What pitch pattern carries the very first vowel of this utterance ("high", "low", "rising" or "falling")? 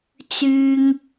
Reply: high